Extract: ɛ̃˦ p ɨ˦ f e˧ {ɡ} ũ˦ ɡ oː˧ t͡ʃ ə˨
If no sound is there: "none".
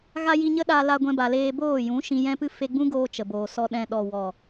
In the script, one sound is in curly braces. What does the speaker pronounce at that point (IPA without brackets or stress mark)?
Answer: ɡ͡b